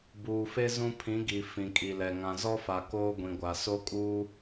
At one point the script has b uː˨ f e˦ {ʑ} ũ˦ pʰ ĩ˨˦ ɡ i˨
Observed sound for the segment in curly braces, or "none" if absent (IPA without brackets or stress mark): z